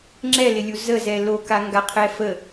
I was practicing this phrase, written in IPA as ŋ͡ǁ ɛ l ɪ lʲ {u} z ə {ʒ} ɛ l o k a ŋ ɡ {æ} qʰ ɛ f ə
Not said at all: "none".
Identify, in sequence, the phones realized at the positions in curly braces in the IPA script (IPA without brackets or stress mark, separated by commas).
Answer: u, z, a